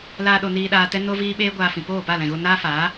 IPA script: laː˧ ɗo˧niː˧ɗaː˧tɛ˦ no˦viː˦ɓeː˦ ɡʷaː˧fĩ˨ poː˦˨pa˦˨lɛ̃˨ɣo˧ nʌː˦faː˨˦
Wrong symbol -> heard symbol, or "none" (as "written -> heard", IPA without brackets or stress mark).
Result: ʌː˦ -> aː˦